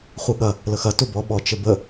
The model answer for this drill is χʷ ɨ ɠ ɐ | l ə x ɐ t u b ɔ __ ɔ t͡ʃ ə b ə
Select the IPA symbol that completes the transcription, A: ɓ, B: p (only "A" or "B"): A